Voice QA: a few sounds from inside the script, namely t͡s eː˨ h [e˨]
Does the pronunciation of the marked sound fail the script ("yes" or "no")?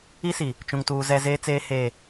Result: yes